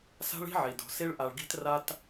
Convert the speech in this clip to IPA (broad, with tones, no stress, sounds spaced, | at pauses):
s a̤˦ ɭ i̤˦ ʕ i˨ d o̤˨ s i˦ ɭ ʔ a˧ ɭ ɡ i̤˦ t r a˦ t